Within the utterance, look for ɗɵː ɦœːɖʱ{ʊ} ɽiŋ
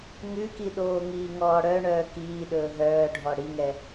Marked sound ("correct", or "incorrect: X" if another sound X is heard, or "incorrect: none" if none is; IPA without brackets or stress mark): incorrect: ɔ